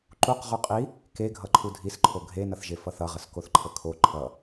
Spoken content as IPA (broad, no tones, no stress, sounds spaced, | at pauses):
ǃ u q ʁ u qʼ i | k e ɡʱ ʌ ǃʰ u dʱ i s ǃʰ o ɡʱ e n ʌ θ ʒ e f ʌ θ ʌ ʁ ə s k o θ ǃʰ ə kʰ o ǃʰ ʌ